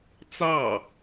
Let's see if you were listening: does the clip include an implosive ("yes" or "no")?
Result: no